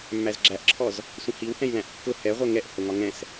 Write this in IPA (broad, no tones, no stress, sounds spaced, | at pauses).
mː æ z ɡ͡ǁ æ ʔ ǁʰ ɔ z | sʷ ə̃ h i w h ɛ̃ j l æ̃ ʔ kː ʊ h ɛ ʁʷ ɜ ŋ ɛ ʔ h ʊ ŋ ɒ ŋ ɛ̃ s